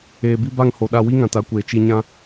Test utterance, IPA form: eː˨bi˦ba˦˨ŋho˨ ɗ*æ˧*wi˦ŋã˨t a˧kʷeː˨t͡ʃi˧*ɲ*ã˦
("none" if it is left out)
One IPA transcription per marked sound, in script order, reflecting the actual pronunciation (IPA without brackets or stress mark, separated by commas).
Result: a˧, ɲ